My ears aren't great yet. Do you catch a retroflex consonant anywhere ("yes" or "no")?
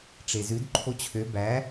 yes